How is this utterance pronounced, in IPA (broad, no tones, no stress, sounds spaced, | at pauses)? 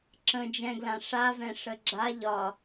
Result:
ǁ ə̃ d͡ʒ ɛ̃ ɡ l ã ʂ a v ɛ̃ ʂ ə ɡ͡ǁ a ʎ ɒ